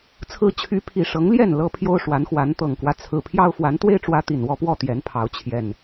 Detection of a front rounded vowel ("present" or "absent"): present